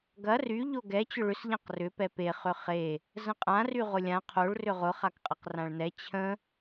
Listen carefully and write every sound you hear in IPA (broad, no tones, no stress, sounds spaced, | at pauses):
ɡ ɐ r y ʎ o ɡ ɛ t͡ɕ ʊ ɭ ʏ s ʎ ã q r ʏ p ɛ p e χ ʏ χ e | z ə̃ qʼ ã r y ʁ ʊ lʲ ã qʰ o ɭ r ʏ ʁ ʊ χ a k qʼ ɐ q r ã ɭ n ɛ t͡ɕʰ ə̃